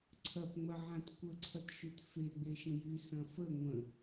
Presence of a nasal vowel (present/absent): present